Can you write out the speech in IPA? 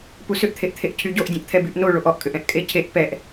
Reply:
p u s ʏ ʔ t̪ʰ e ʔ t̪ʰ e ʔ cʰ y ɟ o ʔ dʲ ɛ̃ ʔ t̪ʰ ɛ b y ʔ n o ɭ o ʔ ɔ ʔ kʼ ʏ ʔ ɛ̃ ʔ kʼ e cʰ e ʔ p ɛ ʔ

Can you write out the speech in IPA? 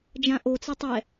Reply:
d͡ʒ ã ʔ o t͡s ɤ tˤ ɛ

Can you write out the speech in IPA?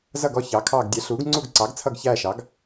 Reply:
z ʌ˦˨ ɡ ɔ˦˨ ç ɑ˩˥ kʰ ɑː˦˨ ɡ dʲ ɛ˩˥ ɬ uː˩˥ ɡ ŋ͡ǀ u˦˨ ɡ ǀ ɑ˩˥ ɡ t͡sʰ ʌ˦˨ ɡ ç æː˦˨ ʃ ɑ˩˥ ɡ

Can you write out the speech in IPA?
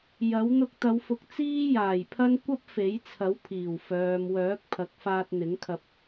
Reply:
j ɐ˨˥ w n̪ ʊ˧ k̚ t̪ ɐ˨˧ w f ʊ˨˥ k̚ t͡s iː˥ j aː˨˩ j pʰ ɐ˥ n kʷ ɐ˥ p̚ f e˨˥ j t͡sʰ ɐ˨˥ w pʰ iː˨˩ w f œː˨ m w œː˨˥ k̚ pʰ ɐ˨˥ k̚ f aː˧ t̚ n̪ ɪ˨˥ ŋ kʰ ɐ˧ p̚

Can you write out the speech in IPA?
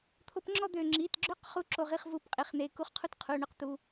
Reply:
t̪ʰ o˧˥˧ p ŋ͡ǁ ɔ˥˧ d̪ ø˧˩ ŋ͡ǁ i˩˧˩ t ɡ͡ǁ ʏ˧˥˧ q χ u˧˥˧ ǁ o˧˩ ʁ i˧˩ χ v u˧˩ p qʼ i˩ χ n̪ e˩˧˩ k u˥˧ χ qʰ u˥˧ t qʰ u˩˧˩ ɳ ʏ˥˧ q t̪ u˩˧˩

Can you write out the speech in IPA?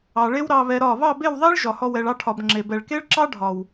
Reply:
ɑ˨ ɭ e˦ w ɾ ɑ˨ β ɛ˨ ɾ ɒ˦˨ β ɑ˦˨ b e˦˨ w ðˤ e˦ ɭ ʒ ɒ˨ h ɔ˧ w ɛ˨ ɭ ɑ˧ ʈʰ ɒ˨ b ŋ͡ǁ e˨ b ɛ˨ ɭ k e˦ ɭ ǁ ɑ˦ ɖʱ ɒ˨ w

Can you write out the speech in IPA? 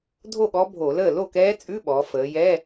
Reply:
dʱ o˥˩ ɠ ɔ˧˥ bʱ o˧˩˧ l əː˥˩ l o˥˩ k ɛː˧˥ t͡sʼ ʉ˧˥˧ ɓ ɔː˩˧ f əː˩˧ j ɛ˧˥˧

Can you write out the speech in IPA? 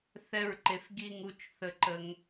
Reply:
θ ɛ˦˨ ɹ ǃ e˨ f ɡ i˦˨ ŋ u˦˨ t͡ʃ θ ə˨ ǃ ə˨ ŋ

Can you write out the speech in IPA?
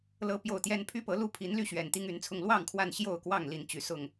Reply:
l ɤ˦ p j o˥˨ ʊ̯ t̪ j ɛ˦ n pʰ y˦ p ɤ˨˦ l u˥˨ pʰ i˨˦ n l y˥˨ ɕ ɥ ɛ˨˩ n t̪ i˦ ŋ y˨˦ n t͡sʰ ʊ˥˨ ŋ l w ɑ˥˨ ŋ kʰ w a˥˨ n ɕ j o˥˨ ʊ̯ k w ɑ˥˨ ŋ l i˨˦ n t͡ɕ y˨˩ s ʊ˥˨ ŋ

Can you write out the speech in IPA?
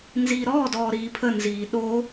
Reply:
n z iː ɾ ɔː d ɔː ɾ iː pʰ ə n z iː ɗ o

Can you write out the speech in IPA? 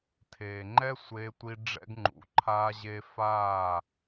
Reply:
tʰ eː˨ ŋ͡ǃ ɛ˦ sʷ eː˧ tʷ i˧ ɖ͡ʐ ɛ̰˧ ɡ ŋ͡ǃ ṵ˨ ǃʰ aː˧ ʑ e˧ f aː˦˨

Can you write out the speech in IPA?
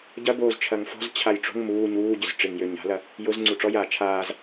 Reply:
ɟ ɐ b oː z t͡ʃʰ ɐ ŋ f ɔ̤ z t͡ɕʰ a j ʈ͡ʂ o̤ ŋ m uː ɲ uː ɟ ʏ z ʈ͡ʂ ɪ ŋ j ø ɲ a̤ l ɐ | j ʊ z ŋ͡ǀ u ʈ͡ʂ ɔ j aː t͡ʃʰ aː z

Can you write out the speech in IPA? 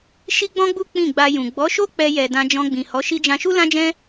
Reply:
ʃ i˦ ɡ͡b ɔ̃˦ ɡ͡b u˦ k͡p ĩ˦˨ ɡ͡b a˧ j ũ˨ ɡ͡b ɔ˨˦ ʃ o˦ k͡p ɛ˧ j ɛ˨ d ã˧ d͡ʒ ɔ̃˧ ɡ͡b ĩ˨ h ɔ˨˦ ʃ i˧ d͡ʒ ã˧ ʃ u˦ l ã˦ d͡ʒ ɛ̃˦

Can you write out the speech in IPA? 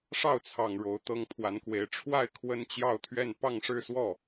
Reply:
ʂ ɑ˥˩ ʊ̯ t͡sʰ ɑ˨˩ ŋ ɻ o˧˥ ʊ̯ t̪ ɤ˥ ŋ pʰ w a˧˥ n k w e˧˥ ɪ̯ ʈ͡ʂʰ w a˥˩ ɪ̯ kʰ w ə˥ n t͡ɕ j ɑ˥˧ ʊ̯ t̪ʰ ɥ ɛ˥˧ n p ɑ˥˧ ŋ ʂ ɻ̩˥˧ s w ɔ˥˩

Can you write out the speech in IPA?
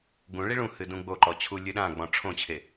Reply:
ɡ ũ ɭ i ɭ ũ h ɨ d ũ ɡ͡b o ǃ ɔ t͡ɕʰ u lʲ ɨ ɗ ã ɡ͡b ɔ̃ ʈ͡ʂʰ õ t͡ɕʰ e

